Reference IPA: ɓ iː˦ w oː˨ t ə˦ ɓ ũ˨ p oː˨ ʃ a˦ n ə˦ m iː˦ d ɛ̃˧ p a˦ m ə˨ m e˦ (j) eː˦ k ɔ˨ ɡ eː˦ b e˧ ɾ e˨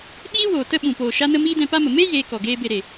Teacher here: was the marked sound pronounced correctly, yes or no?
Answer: yes